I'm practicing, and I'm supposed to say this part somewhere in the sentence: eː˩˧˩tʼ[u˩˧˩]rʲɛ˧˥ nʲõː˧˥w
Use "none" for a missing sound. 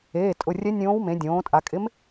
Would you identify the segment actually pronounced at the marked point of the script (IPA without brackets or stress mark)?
ʊ˩˧˩